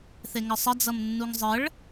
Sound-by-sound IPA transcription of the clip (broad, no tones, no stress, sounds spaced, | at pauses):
θ e ŋ ʌ sˤ ɐ d͡z ʌ m nː u ŋ zˤ ə ɭ